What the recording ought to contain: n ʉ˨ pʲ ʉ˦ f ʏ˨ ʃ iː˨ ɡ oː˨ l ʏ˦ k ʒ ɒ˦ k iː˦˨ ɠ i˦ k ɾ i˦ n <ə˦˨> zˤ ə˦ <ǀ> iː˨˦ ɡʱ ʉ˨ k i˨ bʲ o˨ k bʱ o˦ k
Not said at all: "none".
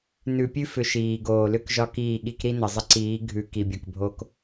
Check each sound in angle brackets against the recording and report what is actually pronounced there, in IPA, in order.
ə˨, ǀ

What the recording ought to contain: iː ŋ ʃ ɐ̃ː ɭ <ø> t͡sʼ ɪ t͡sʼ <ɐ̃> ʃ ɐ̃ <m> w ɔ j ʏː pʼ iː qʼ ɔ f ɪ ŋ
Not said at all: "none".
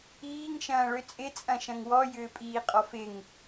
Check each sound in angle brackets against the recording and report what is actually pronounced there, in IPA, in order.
ø, ɐ̃, ŋ

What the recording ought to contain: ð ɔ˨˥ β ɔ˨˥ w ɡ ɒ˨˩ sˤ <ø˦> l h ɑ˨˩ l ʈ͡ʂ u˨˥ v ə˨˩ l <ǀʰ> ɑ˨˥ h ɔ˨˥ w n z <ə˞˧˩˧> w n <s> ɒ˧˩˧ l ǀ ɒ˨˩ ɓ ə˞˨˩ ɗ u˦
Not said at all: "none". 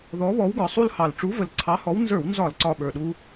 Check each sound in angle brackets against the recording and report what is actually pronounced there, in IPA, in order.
u˦, ǀʰ, ə˞˧˩˧, z

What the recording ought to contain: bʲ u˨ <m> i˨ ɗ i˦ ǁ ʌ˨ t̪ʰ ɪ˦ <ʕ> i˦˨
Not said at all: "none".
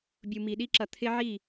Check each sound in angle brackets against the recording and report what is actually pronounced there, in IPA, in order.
m, ʕ

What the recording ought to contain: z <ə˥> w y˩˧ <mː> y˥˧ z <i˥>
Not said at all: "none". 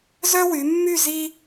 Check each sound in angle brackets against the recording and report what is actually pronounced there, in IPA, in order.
œ˥, mː, i˥

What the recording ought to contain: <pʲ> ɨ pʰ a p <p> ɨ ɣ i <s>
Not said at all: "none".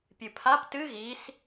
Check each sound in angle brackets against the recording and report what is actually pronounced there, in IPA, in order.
pʲ, t, s

